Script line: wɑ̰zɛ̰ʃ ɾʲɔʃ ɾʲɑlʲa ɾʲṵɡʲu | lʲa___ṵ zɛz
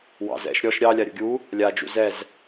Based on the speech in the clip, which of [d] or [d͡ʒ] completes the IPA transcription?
d͡ʒ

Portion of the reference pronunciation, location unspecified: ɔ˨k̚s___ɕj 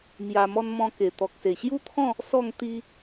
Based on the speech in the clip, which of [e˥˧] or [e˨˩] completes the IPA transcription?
e˨˩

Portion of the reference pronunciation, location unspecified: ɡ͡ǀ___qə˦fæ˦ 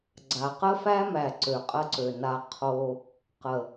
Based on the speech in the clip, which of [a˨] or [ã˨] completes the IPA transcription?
a˨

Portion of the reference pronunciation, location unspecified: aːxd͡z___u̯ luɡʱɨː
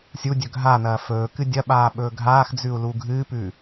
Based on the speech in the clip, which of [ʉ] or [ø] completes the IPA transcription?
ʉ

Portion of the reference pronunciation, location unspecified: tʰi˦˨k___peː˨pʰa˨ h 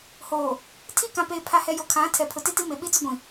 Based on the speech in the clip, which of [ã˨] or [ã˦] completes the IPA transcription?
ã˨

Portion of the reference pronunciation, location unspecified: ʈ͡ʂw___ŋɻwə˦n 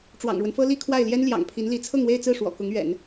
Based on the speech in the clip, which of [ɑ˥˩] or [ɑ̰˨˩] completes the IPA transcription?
ɑ̰˨˩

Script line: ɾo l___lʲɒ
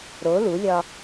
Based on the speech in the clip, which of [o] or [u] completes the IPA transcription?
u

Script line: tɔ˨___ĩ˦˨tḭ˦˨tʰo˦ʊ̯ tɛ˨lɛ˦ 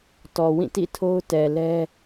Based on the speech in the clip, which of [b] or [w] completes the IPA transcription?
w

